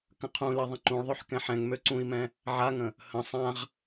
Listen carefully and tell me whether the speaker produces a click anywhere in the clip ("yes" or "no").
yes